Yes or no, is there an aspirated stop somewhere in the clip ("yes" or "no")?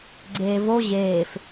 no